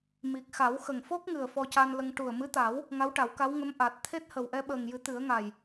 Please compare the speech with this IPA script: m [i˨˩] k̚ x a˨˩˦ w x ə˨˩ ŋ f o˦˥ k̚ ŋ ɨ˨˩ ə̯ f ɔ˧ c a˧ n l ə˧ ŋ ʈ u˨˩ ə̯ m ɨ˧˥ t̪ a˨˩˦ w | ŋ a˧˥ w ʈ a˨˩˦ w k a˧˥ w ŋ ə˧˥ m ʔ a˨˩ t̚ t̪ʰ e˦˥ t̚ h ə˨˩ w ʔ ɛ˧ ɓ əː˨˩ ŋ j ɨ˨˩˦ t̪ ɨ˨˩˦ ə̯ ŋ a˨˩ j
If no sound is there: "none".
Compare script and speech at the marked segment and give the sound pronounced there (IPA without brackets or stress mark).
i˨˩